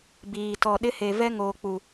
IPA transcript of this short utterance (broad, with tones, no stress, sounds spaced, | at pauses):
b iː˨ t ɔ˨ ɗ ɪ˦ h e˨ v ɛ˦ ŋ oː˨ k͡p u˨